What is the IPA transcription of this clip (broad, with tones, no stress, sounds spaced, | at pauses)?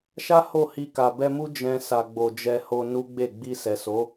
ʃ a˦ h o˦˨ h i˧ k a˨ b ɛ˧ m u˦ d͡ʒ ɛ̃˧ s a˨ ɡ͡b o˨ d͡ʒ ɛ˧ h o˧ n u˦ ɡ͡b e˦˨ ɡ͡b i˧ s ɛ˨ s o˨˦